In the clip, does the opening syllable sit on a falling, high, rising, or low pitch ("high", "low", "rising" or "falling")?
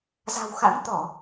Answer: low